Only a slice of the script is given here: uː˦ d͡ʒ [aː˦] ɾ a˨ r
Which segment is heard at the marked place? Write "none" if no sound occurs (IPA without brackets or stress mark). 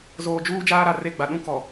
aː˦